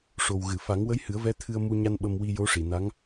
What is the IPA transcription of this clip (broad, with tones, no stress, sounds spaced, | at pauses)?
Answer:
ʂ o˨˩ w ɣ ɨ˨˩˨ f a˨˩˦ ŋ w ə˧˥ j h ɨ˨˩˦ ə̯ v ɛ˧˥ t̪ʰ ɨ˧ ə̯ m u˧ ɲ a˧ n ɓ ə˧ m w i˧ j o˧˥ ʂ i˨˩˨ n a˧˥ ŋ